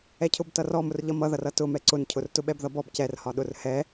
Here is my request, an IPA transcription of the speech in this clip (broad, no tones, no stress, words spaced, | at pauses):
ɛcʰʊb tʌrɔmʊr ʎʌmʌðʌr ʌtʊ mɛǀʊncʰʊrtʊ ɓɛbðʌbɔb cɛrhɒɗʊr hɛ